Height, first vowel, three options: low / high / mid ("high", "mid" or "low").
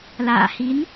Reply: low